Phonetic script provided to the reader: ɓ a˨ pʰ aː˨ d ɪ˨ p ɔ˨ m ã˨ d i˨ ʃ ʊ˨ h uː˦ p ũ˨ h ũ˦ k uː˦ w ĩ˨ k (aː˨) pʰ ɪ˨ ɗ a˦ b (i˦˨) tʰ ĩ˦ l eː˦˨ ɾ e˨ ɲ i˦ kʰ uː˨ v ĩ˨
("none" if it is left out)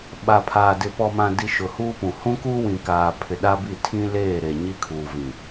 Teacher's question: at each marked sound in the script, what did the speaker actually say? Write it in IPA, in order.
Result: aː˨, i˦˨

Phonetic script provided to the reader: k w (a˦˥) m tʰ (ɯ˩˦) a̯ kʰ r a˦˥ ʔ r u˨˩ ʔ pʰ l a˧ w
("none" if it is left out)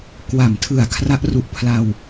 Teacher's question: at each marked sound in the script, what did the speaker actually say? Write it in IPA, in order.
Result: a˩˦, ɯ˨˩

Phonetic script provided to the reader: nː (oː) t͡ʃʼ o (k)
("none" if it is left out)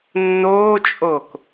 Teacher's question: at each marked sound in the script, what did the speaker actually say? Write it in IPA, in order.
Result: oː, k

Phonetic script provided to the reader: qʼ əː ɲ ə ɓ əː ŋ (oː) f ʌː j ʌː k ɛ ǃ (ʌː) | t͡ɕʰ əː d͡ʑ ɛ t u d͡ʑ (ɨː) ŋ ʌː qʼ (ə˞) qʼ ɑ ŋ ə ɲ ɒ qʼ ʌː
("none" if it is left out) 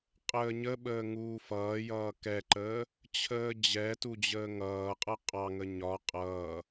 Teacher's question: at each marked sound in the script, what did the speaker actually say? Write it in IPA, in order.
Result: uː, əː, əː, ʌ

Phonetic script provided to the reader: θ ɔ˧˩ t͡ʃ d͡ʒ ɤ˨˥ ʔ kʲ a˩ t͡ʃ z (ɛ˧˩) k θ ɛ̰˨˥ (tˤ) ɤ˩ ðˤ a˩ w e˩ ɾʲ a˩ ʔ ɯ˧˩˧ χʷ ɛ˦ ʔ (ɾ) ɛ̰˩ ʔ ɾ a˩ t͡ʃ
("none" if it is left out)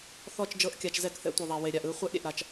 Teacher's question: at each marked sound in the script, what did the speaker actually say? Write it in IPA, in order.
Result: ɛ˧˩˧, tʷ, ɾʲ

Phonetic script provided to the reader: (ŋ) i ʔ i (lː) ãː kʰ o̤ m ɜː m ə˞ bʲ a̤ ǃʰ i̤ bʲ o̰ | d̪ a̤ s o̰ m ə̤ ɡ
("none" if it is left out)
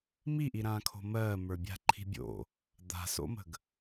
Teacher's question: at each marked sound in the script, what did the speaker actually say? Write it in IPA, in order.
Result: m, ɾ

